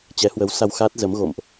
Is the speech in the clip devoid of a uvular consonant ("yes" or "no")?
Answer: yes